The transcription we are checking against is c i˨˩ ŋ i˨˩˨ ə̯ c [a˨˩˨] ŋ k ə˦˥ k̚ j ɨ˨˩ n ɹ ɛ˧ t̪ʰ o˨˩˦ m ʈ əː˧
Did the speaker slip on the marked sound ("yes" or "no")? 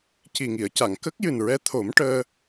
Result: no